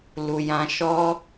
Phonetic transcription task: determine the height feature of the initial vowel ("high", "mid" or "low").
high